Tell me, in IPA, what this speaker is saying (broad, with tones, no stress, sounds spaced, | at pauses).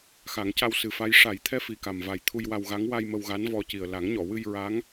x a˨˩˦ ŋ c a˧ w s ɨ˨˩ f a˧˥ j ʂ a˨˩˦ j t̪ʰ ɛ˧˥ f i˨˩ k a˨˩ m v a˨˩ j t̪ʰ u˧ j w a˧ w ɣ a˧˥ ŋ w a˧ j m ə˧ w ɣ a˧˥ n v ɔ˧ c i˨˩ ə̯ l a˨˩˦ ŋ ɲ ɔ˨˩˨ w ɨ˧ j ɹ a˧˥ ŋ